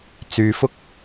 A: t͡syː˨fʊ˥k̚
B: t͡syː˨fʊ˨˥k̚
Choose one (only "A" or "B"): A